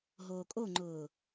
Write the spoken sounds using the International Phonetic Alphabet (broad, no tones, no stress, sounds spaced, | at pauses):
ɦ oː kʼ o ŋ͡ǃ ʊː